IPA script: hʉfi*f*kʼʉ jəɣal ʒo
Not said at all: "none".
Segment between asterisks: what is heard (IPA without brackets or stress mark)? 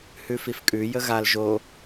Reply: f